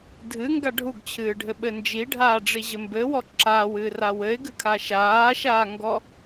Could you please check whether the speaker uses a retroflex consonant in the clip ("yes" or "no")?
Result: yes